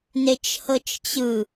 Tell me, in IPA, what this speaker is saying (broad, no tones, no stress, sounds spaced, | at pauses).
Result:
n e t͡ʃ h ɤ t͡ʃ t͡ɕ ɯ